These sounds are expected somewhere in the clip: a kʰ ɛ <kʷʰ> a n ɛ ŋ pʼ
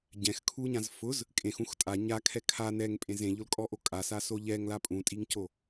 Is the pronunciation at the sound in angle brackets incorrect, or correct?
incorrect